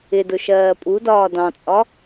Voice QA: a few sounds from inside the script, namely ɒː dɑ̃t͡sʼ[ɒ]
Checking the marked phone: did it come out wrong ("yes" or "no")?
no